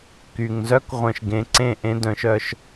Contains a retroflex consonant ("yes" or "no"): no